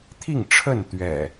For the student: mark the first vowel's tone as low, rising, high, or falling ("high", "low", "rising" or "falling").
falling